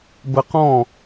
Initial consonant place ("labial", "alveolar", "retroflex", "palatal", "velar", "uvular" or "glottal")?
labial